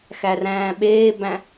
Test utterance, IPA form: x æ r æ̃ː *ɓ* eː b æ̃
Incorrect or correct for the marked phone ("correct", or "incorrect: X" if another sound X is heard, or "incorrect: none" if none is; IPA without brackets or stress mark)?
correct